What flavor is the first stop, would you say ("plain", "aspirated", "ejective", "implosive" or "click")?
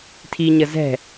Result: aspirated